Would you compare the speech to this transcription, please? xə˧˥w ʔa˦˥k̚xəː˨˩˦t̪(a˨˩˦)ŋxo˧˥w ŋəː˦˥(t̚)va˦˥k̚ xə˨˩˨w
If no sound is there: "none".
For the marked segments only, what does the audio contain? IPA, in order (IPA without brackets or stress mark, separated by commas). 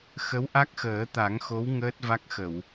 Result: a˨˩˦, t̚